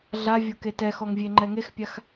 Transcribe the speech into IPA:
ɮavʲoke tɛxɔŋvʲeŋ͡ǃɛ ŋexpʲax

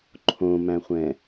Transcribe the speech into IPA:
ǃʰõmæ̃χʷɛ̃

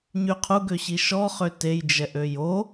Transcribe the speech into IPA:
ɲyqʰuɡøɕi ʃɔχø tejd͡ʒɛʔ øjo

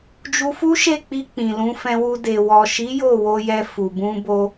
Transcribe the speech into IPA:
d͡ʒu˧fu˦ʃe˦˨k͡pi˧ k͡pĩ˨lũ˨˦fɛ̃˧wu˧ de˨wɔ˨ʃi˨˦ jo˦˨wo˧jɛ˧ fu˨bũ˧bo˧

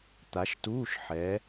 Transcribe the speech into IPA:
t̪a˨˦ʃtuː˧˥˧ʃ ħɛ˨˦

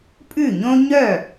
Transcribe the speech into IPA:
pʼʉ˥˩ɲõ˥ ɲœ˥˩

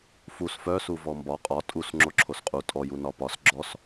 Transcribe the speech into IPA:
fus fœsu vɔmbɒ qʼɒ tʼus ŋ͡ǁoǁʰosqʼu tʼɔju nɒpɒs ɡ͡ǁɔs

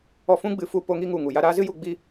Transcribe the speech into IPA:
ɔ˧fũ˦ɡ͡bɨ˧fu˧ po˧ŋi˦ŋu˨ ŋu˨ja˦ ɾaː˦zɨ˦ju˧ ɡ͡bi˦

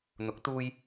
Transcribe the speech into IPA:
n̪ʊ˨˥k̚t̪uː˧j

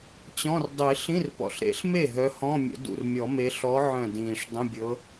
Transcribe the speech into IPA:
t͡ɕɔ̃˧˥˧r dˤi˨˩˦ ɬĩ˧˥˧rpɔ̰˨˩ɬɾḛ˨˦ɬme˥˩ ɦœ˨˦hɔ̃˧˥˧mʲə̰˨˩˦ dṵ˨˩rmʲɔ˨˩˦me˨˦ ɬɔ˨˦ ʕœ̃˥˩dĩː˨˩ʂ dˤə̃˧˥˧bʲɤ˨˦

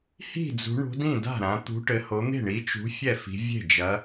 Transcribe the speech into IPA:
hi̤˥˩d͡zṳ˨˦ɳṳ˨˦dĩ˥˩ da̤˥˩ɾã˨˦ t̪ṳ˨˦ʈɘ˨˦ho˨˦n̪e̤˥˩ ɳi˨˦t͡ʃṳ˨˦ fʲɛ˥˩fi̤˨˦ vʲe̤˥˩d͡ʒɐ˨˦

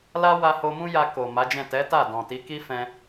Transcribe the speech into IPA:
la˦ wa˧ho˧mũ˦ja˧ ko˨ ma˨˦d͡ʒɛ̃˦˨ tɛ˨˦ta˦˨dɔ̃˨ti˨˦ ki˦fɛ̃˧

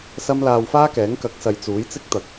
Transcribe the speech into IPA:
sɐ˥m laː˧wfaː˥kɛː˨˥ŋ kɐ˨˥k̚sɐ˨j t͡suː˨˥jt͡sɪ˥k̚ t̪ɐ˨˥k̚

